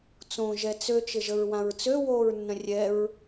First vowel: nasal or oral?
nasal